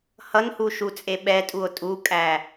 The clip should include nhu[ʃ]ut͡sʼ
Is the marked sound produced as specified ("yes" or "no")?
yes